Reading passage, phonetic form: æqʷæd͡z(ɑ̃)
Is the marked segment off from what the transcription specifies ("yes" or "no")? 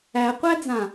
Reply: yes